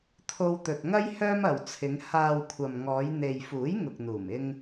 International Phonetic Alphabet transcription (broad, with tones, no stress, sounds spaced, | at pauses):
t̪ʰ o˧ w t̪ ɵ˨ t̚ ŋ ɐ˥ j h œː˥ m ɐ˨ w t͡sʰ ɪ˨˧ ŋ h aː˨ w kʷʰ ɐ˨ m ŋ ɔː˨˧ j n̪ e˨ j f uː˨˥ j ŋ ʊ˨ k̚ n̪ uː˨˩ m ɪ˧ ŋ